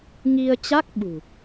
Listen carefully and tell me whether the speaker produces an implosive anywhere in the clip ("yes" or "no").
yes